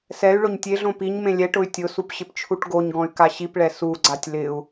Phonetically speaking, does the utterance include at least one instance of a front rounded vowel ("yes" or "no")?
yes